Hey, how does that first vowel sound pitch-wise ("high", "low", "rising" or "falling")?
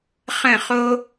falling